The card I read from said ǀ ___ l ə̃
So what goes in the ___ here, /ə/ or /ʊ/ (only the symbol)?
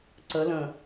ə